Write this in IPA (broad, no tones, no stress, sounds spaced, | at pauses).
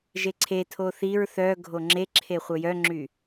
ʒ e ǀʰ e tʰ o θ i ɹ θ œ ɡʱ o ŋ͡ǁ e ǁʰ e χʷ œ j œ ŋ͡ǁ y